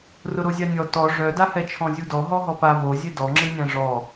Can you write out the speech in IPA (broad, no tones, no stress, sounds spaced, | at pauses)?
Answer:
r ʊ ɾ o zʲ a nʲ ɔ t ɔ ʐ œ d a h ɛ t͡ʃʰ ɔ̃ zʲ u d ɔ ɦ ɔ ɦ ɔ p a β o zʲ e d ɔ ŋ͡ǁ ɨ nʲ ã ʐ ɔ